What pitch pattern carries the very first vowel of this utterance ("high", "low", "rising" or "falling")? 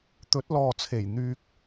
rising